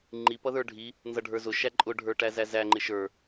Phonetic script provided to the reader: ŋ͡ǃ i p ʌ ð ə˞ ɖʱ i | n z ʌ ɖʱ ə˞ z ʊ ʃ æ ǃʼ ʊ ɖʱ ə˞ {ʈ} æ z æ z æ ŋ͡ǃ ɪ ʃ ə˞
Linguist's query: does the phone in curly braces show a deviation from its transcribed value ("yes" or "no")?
no